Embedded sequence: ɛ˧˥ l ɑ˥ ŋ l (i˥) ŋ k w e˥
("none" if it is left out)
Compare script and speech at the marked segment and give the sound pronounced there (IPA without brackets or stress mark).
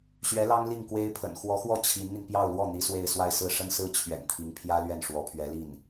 i˥˩